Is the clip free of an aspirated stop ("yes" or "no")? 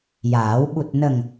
yes